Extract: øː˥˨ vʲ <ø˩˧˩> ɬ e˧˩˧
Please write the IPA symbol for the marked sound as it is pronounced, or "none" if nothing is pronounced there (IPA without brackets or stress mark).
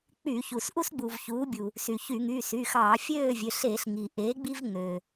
ø˩˧˩